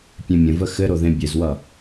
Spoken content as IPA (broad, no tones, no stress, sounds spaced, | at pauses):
pʲ ẽ mʲ ə̃ v ə x ɘ ɾ o ð ẽ bʲ ɘ z w ʌ